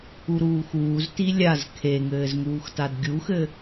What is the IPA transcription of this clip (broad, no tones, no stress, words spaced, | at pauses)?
uɾuːxuːzti lʲaz kʰeŋɘːzŋuːxtad ɡʲuxɘ